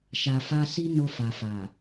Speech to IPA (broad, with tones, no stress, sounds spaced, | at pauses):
ʃ a˨ f a˧ s i˦ n o˧ f a˨ f a˨